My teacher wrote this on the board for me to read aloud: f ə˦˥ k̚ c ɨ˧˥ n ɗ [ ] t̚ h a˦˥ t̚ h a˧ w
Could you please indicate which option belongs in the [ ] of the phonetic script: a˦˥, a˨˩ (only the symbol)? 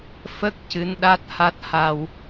a˦˥